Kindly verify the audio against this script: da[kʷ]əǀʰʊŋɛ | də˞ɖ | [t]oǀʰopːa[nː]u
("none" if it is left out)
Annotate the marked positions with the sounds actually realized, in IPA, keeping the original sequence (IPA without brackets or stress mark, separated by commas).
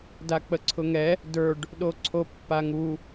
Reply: k͡p, ɗ, ŋ